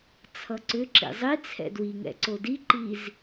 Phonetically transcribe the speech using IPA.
t͡sʰ ʌ ǀ ʏ ǁ ḭ zˤ i t͡sʰ ɛ̰ d w i ŋ ɛ̰ ǀ o d i ǃ i z

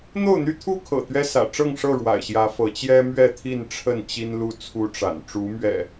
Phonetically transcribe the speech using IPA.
n̪ o˥˨ ʊ̯ n̪ y˦ t̪ʰ u˦ kʰ ɤ̰˨˩ t̪ ɥ ɛ˦ s ä̰˨˩ ʈ͡ʂ ɤ˥˨ ŋ ʂ ɤ˥˨ ɻ w a̰˨˩ ɪ̯ ɕ j ä˨˦ f ɤ˨˦ t͡ɕ j ɛ˦ m ɥ ɛ˥˨ t̪ʰ i˥˨ n ʈ͡ʂʰ ə˥˨ n t͡ɕ i˦ n l u˦ t͡sʰ u˦ ʈ͡ʂ a̰˨˩ n ʈ͡ʂ u˨˦ m ɥ ɛ̰˨˩

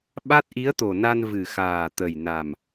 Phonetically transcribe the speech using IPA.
ɓ a˦˥ t̚ ʔ i˧˥ ə̯ t̪ o˨˩ n a˧ n v ɨ˨˩ x aː˨˩ t̪ ə˨˩ j n a˨˩ m

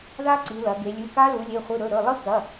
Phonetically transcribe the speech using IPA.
ð a˦˥ ǀ i˩˧ l ɐ˩˧ ɡ e˩˧ lʲ ɨ˩˧˩ k a˦˥ l u˩˧ lʲ e˩˧˩ χʷ ɨ˩˧˩ ɾ ɵ˩˧˩ ɾ ɵ˩˧˩ lˠ ɨ˦˥ k ɐ˩˧˩

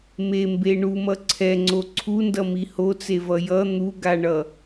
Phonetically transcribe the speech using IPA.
m e m b e ɳ u m ʌ ǀʰ ɛ ŋ͡ǀ o ǀʰ u n d ʌ m i h o t͡s e v ʌ j ʌ n̪ u ɡ a ɳ ʌ

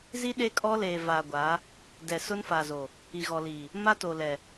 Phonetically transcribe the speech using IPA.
z i˦ ɗ e˦ kʼ ɔ˦ l eː˨ v a˨ ɡʷ a˨˦ | d ɛ˨ s ʊ˦ n f a˨ z o˨ | i˨ ɣ ɔ˨ l i˨ | m a˦ t o˨ l ɛ˨

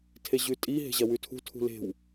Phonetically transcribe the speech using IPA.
tʰ e ʑ ʉ tʼ i ɦ e̤ ʑ ɐ w ʉ tʰ ṳ tʰ ṳ l e̤ w

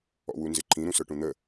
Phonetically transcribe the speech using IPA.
ɔ̰ w u n z ɪ ǃʰ ĩ ɾ ũ s ə˞ ʈ ũ n̪ ə

